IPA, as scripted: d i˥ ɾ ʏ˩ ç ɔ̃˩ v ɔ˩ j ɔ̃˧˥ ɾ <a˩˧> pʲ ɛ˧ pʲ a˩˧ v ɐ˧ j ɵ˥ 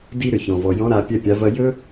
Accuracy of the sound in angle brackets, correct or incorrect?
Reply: correct